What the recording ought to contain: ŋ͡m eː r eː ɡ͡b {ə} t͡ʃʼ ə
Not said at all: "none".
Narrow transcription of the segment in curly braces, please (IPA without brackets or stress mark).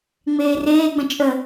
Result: ə̃